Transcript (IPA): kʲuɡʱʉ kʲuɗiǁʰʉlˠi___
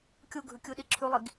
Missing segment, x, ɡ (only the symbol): ɡ